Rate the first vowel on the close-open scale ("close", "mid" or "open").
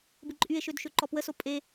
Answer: close